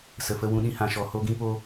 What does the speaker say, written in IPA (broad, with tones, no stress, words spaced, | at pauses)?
sə˨fə˧wũ˧ɗĩ˧ hã˨ʃɔ˨ ho˧ɡĩ˧po˧